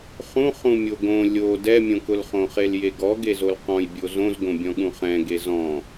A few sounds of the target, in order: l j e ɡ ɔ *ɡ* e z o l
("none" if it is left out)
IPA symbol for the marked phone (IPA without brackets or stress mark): ɡ